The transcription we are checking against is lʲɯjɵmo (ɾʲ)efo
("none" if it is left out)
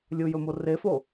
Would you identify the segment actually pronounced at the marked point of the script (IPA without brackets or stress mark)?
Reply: r